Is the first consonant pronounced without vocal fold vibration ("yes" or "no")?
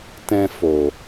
yes